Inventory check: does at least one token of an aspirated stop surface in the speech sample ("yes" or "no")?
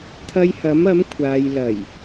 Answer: yes